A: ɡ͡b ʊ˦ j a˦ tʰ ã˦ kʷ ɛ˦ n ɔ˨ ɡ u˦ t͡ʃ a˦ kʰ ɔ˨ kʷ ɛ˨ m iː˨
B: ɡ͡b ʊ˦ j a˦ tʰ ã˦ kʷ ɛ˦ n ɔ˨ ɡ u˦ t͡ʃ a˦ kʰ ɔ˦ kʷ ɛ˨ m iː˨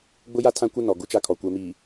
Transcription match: A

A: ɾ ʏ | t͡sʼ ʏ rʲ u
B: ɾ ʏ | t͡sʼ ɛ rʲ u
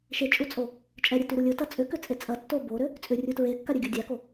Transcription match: A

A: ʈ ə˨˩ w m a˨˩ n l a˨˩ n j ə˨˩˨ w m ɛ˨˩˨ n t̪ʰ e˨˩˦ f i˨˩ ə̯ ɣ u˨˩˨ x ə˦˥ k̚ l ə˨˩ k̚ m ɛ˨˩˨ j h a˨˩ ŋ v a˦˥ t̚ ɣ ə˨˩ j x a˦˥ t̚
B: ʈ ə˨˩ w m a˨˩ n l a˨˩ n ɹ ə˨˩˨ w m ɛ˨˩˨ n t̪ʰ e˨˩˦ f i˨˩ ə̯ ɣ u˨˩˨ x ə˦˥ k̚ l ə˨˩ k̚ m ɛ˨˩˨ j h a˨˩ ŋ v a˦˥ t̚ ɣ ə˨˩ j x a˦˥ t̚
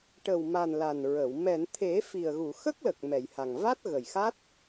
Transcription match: B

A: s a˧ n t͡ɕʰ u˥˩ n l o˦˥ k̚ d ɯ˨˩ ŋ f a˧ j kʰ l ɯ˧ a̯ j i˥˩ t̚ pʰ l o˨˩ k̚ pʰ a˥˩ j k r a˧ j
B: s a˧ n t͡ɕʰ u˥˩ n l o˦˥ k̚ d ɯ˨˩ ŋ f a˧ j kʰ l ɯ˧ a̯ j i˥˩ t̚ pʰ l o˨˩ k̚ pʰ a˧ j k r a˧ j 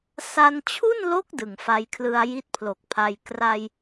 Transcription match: B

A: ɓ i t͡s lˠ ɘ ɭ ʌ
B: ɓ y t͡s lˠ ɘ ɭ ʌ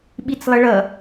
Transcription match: A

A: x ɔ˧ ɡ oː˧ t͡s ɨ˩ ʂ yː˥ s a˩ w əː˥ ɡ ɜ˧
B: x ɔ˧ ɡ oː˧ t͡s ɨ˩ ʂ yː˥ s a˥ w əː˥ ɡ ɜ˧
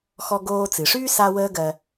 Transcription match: B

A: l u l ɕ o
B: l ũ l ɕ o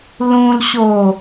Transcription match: B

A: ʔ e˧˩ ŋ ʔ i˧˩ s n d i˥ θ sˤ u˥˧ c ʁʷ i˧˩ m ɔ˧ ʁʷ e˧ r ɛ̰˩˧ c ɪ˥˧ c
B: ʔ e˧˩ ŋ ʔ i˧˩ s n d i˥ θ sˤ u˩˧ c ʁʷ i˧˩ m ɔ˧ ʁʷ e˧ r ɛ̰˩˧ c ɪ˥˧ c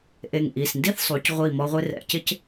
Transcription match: B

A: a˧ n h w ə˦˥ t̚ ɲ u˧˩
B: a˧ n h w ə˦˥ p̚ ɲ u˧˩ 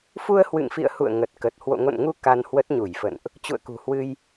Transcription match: A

